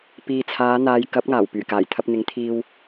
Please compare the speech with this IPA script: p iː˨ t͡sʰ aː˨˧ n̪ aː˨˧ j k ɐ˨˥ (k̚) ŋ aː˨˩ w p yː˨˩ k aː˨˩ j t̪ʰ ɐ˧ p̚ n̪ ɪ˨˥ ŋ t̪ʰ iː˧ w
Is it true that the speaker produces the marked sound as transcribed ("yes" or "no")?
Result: no